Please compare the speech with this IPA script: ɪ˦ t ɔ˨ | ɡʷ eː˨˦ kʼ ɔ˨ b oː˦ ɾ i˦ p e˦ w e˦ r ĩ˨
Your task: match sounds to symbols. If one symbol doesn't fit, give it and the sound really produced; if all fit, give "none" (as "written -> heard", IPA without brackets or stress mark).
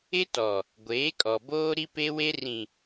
none